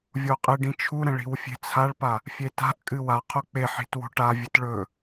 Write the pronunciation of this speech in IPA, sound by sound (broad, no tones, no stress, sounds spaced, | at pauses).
vʲ o qʼ ɨ ɖ ĩ t͡ʃʰ u ɾ ɐ̃ ɭ i̤ w fʲ e̤ t͡sʰ a ɭ p a | fʲ e t a̤ ʔ kʼ ɨ w a qʰ o k͡p e ħ i̤ t w o̤ ʈ a vʲ ɨ t ɭ ɵ